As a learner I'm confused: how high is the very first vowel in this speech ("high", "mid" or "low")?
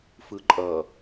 high